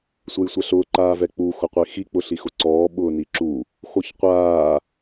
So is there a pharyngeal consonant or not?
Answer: no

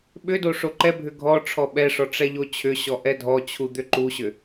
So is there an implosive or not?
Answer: yes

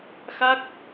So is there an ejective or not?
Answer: no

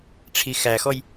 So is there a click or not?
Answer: no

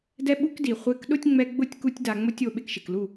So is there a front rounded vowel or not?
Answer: no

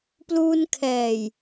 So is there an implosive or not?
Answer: no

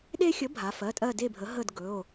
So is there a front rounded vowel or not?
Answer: no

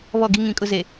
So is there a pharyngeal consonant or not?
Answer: no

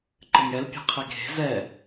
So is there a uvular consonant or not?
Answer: yes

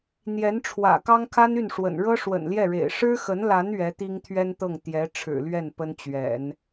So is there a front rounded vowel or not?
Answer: yes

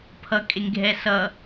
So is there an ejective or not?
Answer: yes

